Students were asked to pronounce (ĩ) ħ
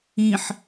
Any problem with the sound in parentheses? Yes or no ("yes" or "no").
no